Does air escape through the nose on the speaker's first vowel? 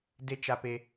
no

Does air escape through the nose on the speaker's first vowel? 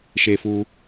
no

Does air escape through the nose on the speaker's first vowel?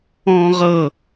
yes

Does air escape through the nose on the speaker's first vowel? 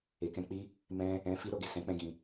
no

